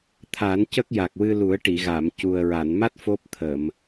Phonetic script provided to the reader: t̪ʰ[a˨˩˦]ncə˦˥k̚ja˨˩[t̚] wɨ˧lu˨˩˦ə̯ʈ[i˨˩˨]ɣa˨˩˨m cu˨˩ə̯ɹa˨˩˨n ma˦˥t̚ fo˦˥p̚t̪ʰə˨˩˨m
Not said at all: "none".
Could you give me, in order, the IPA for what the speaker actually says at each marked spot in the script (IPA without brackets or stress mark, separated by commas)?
a˨˩˦, k̚, i˨˩˨